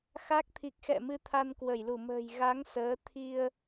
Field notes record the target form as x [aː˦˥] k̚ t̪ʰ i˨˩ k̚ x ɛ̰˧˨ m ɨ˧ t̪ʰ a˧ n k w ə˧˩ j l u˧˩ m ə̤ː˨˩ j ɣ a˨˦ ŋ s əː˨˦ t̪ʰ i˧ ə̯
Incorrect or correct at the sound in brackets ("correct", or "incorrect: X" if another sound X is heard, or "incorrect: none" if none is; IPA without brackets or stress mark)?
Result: incorrect: a˦˥